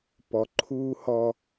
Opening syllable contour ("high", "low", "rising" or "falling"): low